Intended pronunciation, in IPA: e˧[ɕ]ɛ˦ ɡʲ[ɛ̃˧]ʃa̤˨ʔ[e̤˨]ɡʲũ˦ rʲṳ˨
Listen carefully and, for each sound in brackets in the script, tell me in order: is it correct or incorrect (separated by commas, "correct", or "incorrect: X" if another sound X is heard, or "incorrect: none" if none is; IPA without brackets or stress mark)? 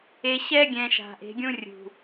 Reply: correct, correct, incorrect: e̤˨˦